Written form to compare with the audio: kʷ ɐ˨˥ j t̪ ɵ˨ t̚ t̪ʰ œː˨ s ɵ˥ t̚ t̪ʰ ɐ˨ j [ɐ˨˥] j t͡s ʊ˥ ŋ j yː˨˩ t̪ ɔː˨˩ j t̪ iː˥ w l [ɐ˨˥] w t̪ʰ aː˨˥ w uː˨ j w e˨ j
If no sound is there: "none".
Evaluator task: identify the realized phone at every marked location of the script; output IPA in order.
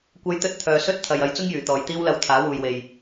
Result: ɐ˨˥, ɐ˧

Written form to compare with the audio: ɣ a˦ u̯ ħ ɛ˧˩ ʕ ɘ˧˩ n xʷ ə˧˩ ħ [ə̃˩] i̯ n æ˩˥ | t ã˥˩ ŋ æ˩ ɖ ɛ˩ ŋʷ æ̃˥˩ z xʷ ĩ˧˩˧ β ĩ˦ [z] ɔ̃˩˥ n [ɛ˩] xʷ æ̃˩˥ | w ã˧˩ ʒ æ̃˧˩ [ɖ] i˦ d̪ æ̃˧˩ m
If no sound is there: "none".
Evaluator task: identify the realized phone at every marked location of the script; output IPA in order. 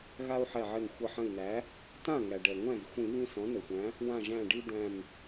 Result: ə̃˧˩, s, ɘ˩, ɖ

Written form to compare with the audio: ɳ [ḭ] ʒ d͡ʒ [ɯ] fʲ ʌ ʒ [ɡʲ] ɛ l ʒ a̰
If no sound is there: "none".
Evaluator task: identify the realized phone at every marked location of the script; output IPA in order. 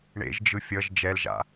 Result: ḛ, ɯ, d͡ʒ

